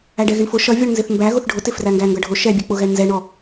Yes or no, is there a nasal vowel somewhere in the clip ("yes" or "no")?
no